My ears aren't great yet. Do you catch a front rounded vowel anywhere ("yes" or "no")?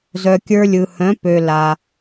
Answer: yes